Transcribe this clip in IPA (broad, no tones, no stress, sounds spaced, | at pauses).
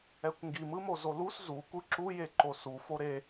ɛ kʷ ŋ ɡ i m ɯ m o z o l u s z u kʷ ɯ ǁ u j e ǃ o s u f o ɾ e